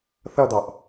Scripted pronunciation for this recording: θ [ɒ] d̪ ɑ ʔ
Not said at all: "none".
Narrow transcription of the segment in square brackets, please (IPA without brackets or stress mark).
ʌ